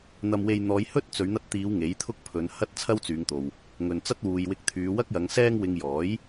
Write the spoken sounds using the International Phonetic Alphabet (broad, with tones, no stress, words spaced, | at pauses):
n̪ɐ˧mwe˧j n̪ɔː˨˧j hɵ˥t̚ t͡sɵ˨˧ɥn̪ɐ˧t̚t̪iː˨˧w ŋe˨˥jt̪ʰʊ˥k̚pʰɵ˨˧nhɐ˥t̚ t͡sʰɐ˥wt͡syː˨˧ŋt̪o˨w | ŋɵ˨nt͡sɐ˥t̚wuː˨j wɪ˧k̚t̪ʰyː˨˧wɐ˥k̚jɐ˨˧ŋ sɛː˧ŋwɪ˨ŋ jɔː˨˥j